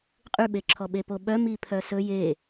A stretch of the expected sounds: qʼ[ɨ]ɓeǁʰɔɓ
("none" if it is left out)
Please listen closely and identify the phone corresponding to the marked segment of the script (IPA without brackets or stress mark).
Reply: y